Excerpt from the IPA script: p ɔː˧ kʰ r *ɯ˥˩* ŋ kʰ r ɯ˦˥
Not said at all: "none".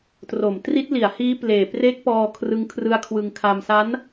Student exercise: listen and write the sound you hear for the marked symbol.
ɯ˦˥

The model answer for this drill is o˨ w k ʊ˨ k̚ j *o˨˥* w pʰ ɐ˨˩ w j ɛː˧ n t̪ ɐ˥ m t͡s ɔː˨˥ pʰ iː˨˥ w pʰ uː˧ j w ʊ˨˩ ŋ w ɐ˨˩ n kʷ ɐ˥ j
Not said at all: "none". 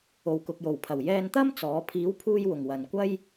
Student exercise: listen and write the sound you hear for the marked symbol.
o˨˩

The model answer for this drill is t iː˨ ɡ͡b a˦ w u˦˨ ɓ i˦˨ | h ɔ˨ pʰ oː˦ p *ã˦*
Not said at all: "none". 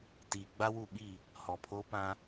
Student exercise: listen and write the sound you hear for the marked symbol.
ã˦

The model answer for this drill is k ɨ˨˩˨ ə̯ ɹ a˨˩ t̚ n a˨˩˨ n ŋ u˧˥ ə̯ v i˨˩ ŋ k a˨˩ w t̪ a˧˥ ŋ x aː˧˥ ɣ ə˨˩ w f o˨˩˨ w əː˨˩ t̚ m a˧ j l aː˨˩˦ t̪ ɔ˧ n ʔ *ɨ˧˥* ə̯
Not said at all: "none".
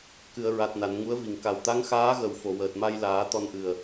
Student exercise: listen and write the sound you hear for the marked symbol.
ɨ˨˩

